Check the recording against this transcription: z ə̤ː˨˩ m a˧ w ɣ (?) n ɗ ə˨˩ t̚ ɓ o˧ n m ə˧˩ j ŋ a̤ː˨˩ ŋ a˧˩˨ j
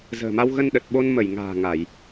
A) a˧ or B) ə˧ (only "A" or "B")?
B